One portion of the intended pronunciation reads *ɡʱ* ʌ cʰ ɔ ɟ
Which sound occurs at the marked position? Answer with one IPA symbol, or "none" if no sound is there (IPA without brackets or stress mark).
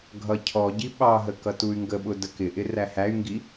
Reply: ɡʱ